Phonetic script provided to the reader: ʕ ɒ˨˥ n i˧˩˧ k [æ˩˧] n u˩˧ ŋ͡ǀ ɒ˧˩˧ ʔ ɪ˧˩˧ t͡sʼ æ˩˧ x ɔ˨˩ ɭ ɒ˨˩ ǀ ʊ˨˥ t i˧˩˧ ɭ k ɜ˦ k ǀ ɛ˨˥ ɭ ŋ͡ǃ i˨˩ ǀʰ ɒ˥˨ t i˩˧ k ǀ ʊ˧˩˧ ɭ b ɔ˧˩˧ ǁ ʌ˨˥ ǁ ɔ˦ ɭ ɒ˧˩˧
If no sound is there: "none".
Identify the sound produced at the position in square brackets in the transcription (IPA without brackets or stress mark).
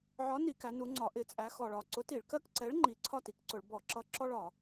æ˩˧